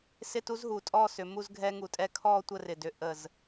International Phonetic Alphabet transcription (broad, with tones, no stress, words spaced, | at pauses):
sɪ˥˧tu˥zɦu˩˧ tʼɔ˥˧sʏ˩˧mu˥˧z ɡʱɛ˧ŋu˩˧tʼɛ˧ kʰɔ˥˧ tʷə˥˧rɪ˧˩ dʏ˧ ʔə˧˩z